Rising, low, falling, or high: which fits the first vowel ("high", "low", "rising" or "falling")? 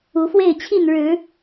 rising